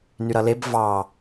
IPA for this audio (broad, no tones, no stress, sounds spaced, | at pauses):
n y ɾ ʌ l e b v ɑ